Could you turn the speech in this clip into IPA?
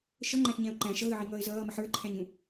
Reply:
ʃ ʌ ŋ͡ǃ æ̃ ɬ ɲ æ̃ ʊ̯ ǃ æ̃ ʃ ʌ ɣ ə ʕ i ŋ ʌː ɪ̯ z ʌː m ə ħ ə˞ ǃʰ æ̃ ɲ ũ

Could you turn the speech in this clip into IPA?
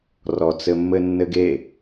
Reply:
r ɔ t͡s ɘ mː ɘ nː ɘ ɡ e

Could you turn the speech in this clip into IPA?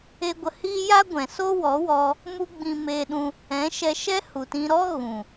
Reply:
e˧ ɡʷ ə˧ h iː˦ j a˦ ɡʷ ɛ̃˨ s o˦ w ɔ˨˦ w ɔ˧ | m u˦ ɡ͡b ĩ˧ m eː˧ ɗ ũ˧ | ɛ̃˨˦ ʃ ɛ˧ ʃ ɛ˦ h u˨ t ĩ˧ ɾ ɔ˦ ɣ ũ˨

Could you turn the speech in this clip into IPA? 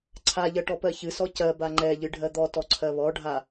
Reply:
ǀʰ a ʎ ɜ ʈ ɔ p ɜ ç ɨ s ɔ c ɜ b a ŋ͡ǃ ɛ ʎ ɨ ɖʱ ɜ d̪ ɔ t ɔ ǀʰ ɜ β ɔ ɖʱ a

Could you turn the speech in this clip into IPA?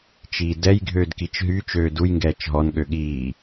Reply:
t͡ʃ iː d ɛ j ɡʱ øː d k i t͡ʃ ɦ y t͡ʃ øː d u j ŋ ɡ ɛː t͡ʃ ɦ ɔ n ɠ ø ɠ iː

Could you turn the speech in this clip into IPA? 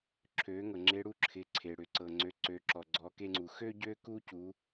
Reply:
ǁʰ ø˩˧ ŋ ɤ˩ ŋ͡ǁ e˧˥ ɽ u˧ ǁʰ ɪ˩˧ ǀʰ e˩ ɽ ʏ˩ ǀ ɤ˩ ŋ͡ǀ ø˩˧ ǀ ø˩˧ ǁ ɔ˩ ɡ͡ǀ ɔ˩˧ k e˧ ŋ͡ǀ u˩ x ø˥ ɟ ø˥ k u˥ c u˩˧

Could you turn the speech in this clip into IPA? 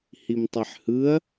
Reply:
h i m tˤ ɛ ħ h ɯ ɐ̯

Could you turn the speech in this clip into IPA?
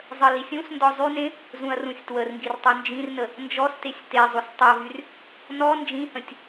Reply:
zˤ ə l i sʲ ũ s n d ɔ zˤ y n ẽ | z ũ ɐ̯ r ũ sʲ t w ə r ŋ ɡ i r tˤ u n d͡ʒ ĩ r n ə | n d͡ʒ ɔ s t e sʲ t e zˤ u s tˤ ɜ v y r | n ɔ n d͡ʒ ĩ h ə̃ tʲ

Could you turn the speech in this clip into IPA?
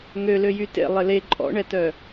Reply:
ŋ ø l ø j y t ḛ lˠ ɪ l e ǃʼ ɔ̰ ɳ ɛ t œ

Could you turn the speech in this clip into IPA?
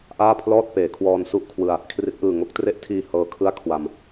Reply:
ʔ aː˥˩ pʰ l ɔː˥˩ t̚ p eː˩˦ kʰ w ɔː˧ n s u˥˩ ʔ kʰ w ɯ˧ a̯ | kʰ r i˦˥ t̚ ʔ ɯː˨˩ ŋ o˦˥ k̚ t r e˦˥ ʔ tʰ iː˨˩ h ɤː˦˥ kʰ ɯ˥˩ a̯ kʰ w a˨˩ m

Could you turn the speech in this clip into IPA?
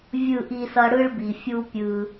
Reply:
vʲ ɯ˦˨ ʔ i˦ s ʌ˦ ɽ ɯ˦ ɭ b i˨ fʲ u˦ pʲ ɯ˦

